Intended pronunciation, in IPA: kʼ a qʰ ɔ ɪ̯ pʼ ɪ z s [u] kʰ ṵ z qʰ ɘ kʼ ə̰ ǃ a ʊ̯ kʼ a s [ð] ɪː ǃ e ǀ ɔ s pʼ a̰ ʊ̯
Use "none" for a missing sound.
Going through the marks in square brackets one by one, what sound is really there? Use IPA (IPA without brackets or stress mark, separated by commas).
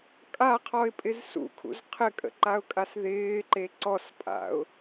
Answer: ṵ, ð